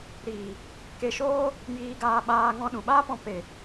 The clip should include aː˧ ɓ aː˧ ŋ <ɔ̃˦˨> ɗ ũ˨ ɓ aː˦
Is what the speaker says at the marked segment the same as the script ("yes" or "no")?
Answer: no